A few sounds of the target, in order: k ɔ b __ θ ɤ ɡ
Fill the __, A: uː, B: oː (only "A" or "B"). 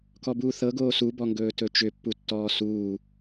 A